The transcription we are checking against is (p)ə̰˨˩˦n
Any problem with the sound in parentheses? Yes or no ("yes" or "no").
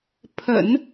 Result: yes